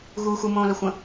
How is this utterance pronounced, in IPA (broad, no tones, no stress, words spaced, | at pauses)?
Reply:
ɣuːxu mõːləxʷə̃